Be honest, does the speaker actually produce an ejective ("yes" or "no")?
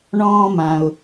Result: no